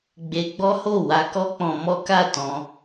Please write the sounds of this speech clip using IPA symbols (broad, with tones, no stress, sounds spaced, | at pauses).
ɡ͡b e˧ ɡ͡b ɔ˦ h o˦˨ w a˧ k ɔ˦ k͡p ɔ̃˧ m ɔ˦ k a˦˨ t ɔ̃˧